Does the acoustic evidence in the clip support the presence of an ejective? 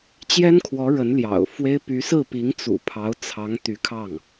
no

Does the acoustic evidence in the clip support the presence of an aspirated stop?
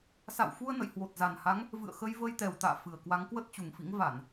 no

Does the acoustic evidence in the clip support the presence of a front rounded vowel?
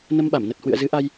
no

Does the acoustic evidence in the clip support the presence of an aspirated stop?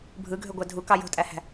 no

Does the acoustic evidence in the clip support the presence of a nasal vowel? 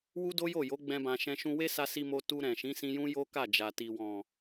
yes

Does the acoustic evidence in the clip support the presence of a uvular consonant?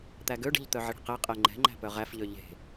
yes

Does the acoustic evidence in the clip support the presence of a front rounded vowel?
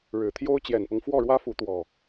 no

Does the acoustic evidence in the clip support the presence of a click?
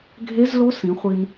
no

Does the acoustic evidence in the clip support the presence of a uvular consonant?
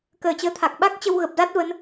no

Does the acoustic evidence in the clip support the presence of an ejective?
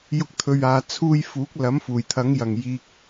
no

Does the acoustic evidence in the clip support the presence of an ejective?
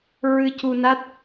no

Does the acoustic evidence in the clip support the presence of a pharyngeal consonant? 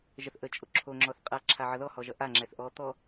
yes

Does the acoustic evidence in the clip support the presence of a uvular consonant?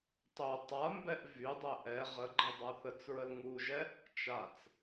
yes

